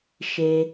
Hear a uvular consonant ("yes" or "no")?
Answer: no